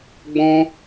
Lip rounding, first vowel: rounded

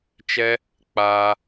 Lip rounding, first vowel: unrounded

